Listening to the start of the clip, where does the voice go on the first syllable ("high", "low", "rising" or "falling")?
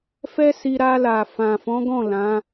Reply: high